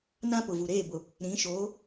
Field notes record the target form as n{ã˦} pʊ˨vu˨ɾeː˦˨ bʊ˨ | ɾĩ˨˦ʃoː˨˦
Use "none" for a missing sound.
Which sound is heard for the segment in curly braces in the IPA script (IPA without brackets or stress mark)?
ã˦